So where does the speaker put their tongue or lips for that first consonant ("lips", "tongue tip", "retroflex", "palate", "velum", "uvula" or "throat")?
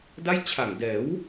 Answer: tongue tip